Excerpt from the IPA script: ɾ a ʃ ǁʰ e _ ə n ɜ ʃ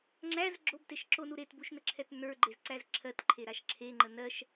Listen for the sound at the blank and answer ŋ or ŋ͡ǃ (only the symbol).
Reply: ŋ͡ǃ